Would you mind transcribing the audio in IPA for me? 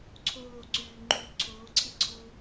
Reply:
ǀʰ oː ǀ yː ŋ͡ǃ yː ǀʰ oː ǀʰ i ǀʰ u

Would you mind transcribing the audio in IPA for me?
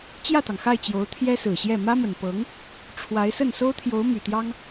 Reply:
t͡ɕ j ä˥˩ t̪ ɑ˩ ŋ x a˥˩ ɪ̯ t͡ɕ j o˧˥ ʊ̯ t̪ʰ j ɛ˥ s ɹ̩˨˩ ɕ j ɛ˥˩ m ä˥ m ə˨˩ n p ɤ˧˥ ŋ | ʈ͡ʂʰ w a˧˥ ɪ̯ s ə˥˩ n s o˥ ʊ̯ t̪ʰ j o˧˥ ʊ̯ m y˨˩ t̪ j ɑ˥ ŋ

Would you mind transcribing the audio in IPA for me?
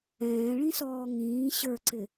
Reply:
ɛ̃ː ɭ ĩ s ɔː ŋ ĩː ɕ ə˞ ǀ ɪ

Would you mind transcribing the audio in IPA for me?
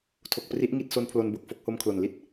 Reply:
tʰ o˨˩ k̚ p r i˦˥ ʔ ŋ i˦˥ t̚ s o˦˥ n pʰ l o˧ n b o˨˩ k̚ f o˥˩ k̚ h o˦˥ m kʰ l o˨˩ n l i˥˩ t̚

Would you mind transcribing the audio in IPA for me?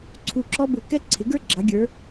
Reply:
ǀʰ u˦˨ ǁ ɔ˥ b ʊ˦˨ k ɛ˥ ǀʰ ɪ˨˦ ɡ ə˞˥ ɡ͡ǁ ɑ˨˦ ɡʲ ə˞˨˦

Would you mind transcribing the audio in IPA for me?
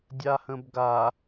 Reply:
dʲ a h ə̃ b ɡ a

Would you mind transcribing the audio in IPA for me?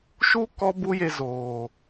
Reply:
ʃ u˦ k ɔ˦ b u˦ j e˧ z oː˨

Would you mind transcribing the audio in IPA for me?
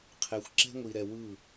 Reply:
qʰ e˨ xʷ ǁ ɛ̤˦ ŋʷ i˨ ɾ ɛ˨ w ɯ˦˨

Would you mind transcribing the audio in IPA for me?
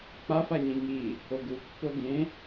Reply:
k͡p a f a ɲ ĩ ŋ i | o ɡ u pː o ɡ ẽ

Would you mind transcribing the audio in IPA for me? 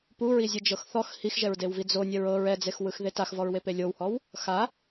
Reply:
p u ɹ i zʲ ɯ d͡ʒ ɤ x θ ɔ x h i x ʒ ɛ ɹ d e w v i d͡z o nʲ ɛ ɹ ɤ ɹ ɛ d͡z e x w ɯ x ð e t a x v ɔ ɹ w e p e lʲ o w h ɔ w | x a

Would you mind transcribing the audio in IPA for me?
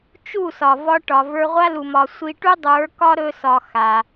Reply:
t͡ʃ u˦˨ s ɒ˨ v ɒ˧ ʈ ɒ˨ v ə˞˧ ʁʷ a˦ l u˨ m ɒ˨ sʷ i˧ ʈ u˦ dˤ ə˞˨˦ k ɒ˦ ɾ ɵ˧ s ɒ˨ x a˨

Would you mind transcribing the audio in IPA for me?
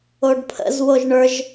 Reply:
o ɖ pʰ ə̰ z w o ʒ ɳ ə˞ ʒ

